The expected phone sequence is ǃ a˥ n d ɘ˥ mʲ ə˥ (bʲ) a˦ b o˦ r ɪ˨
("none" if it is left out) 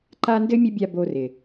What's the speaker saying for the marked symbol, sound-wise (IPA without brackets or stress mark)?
bʲ